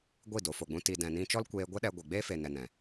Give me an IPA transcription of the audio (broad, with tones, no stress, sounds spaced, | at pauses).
ɡʷ i˦˨ d o˨ f o˨ ɡ͡b ũ˧ t i˨ d ɛ̃˨ n ĩ˧ t͡ʃ ɔ˦ l kʷ eː˧ ɡʷ ɛ˦ ɗ ɛ˧ ɡʷ e˨ ɡ͡b e˦ f e˨ n ɛ˨ n ɛ̃˨